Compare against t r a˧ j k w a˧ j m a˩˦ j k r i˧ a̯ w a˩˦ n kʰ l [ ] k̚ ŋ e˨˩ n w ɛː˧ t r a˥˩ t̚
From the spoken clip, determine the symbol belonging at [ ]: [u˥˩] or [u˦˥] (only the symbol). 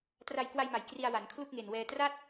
u˥˩